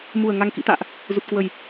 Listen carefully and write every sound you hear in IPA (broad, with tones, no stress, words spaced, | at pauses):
mu˨˩ə̯ ŋa˨˩ŋkḭ˧˨t̪a̰ː˧˨ʔ | zu˨˩t̚kwə˨˩j